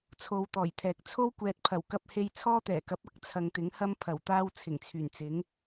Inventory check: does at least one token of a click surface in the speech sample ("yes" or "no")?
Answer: no